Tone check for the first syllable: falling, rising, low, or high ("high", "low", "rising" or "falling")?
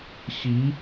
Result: rising